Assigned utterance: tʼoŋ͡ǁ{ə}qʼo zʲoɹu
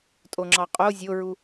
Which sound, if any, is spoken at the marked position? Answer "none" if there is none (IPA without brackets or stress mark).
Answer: ɑ